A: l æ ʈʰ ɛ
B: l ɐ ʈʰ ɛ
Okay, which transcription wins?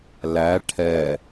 A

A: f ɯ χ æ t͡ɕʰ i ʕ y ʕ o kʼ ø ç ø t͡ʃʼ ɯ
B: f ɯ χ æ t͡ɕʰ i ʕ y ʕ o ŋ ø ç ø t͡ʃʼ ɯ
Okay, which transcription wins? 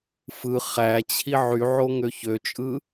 B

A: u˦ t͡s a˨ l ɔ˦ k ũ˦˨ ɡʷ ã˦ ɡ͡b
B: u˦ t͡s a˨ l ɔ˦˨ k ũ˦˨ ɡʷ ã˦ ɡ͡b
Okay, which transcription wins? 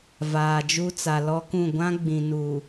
A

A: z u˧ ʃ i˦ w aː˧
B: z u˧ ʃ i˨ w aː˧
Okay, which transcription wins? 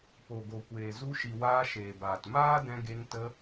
B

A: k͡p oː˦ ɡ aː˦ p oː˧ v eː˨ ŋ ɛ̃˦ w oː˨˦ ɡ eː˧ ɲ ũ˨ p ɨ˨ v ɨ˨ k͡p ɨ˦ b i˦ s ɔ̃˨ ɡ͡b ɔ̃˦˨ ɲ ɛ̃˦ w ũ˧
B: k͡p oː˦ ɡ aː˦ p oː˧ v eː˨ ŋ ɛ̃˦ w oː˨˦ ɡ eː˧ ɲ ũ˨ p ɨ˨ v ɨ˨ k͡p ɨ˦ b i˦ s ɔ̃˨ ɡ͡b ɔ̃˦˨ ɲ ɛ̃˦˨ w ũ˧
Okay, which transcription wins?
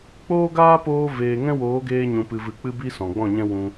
A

